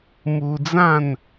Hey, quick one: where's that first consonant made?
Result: lips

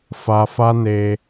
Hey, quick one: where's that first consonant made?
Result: lips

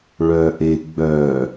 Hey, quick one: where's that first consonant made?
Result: retroflex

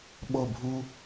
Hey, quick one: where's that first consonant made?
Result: lips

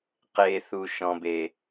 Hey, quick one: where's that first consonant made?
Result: uvula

